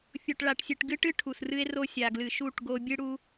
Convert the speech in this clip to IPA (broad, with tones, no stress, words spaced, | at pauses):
fʲo˨ʈɭa˨ʈsʲɨ˨ʈ ɡɨ˦ʈɨ˦ ʈʰu˨srɨ˦e̯ro˦ sʲa˨ɡlɨ˨ʃu˦˨ʈ ɡo˦ bʲɨ˦ɽu˦